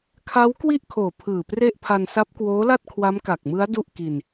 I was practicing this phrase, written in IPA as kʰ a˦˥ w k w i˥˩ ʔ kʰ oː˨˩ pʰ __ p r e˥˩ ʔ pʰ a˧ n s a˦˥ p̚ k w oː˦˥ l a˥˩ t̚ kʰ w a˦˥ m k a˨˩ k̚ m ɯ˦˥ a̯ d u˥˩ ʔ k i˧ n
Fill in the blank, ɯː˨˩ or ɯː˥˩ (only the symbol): ɯː˨˩